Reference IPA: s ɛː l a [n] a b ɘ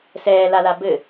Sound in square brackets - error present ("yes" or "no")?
yes